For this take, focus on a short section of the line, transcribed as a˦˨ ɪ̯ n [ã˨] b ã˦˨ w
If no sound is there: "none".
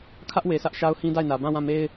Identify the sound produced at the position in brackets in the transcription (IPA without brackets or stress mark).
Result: ä˨